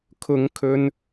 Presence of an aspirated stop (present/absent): present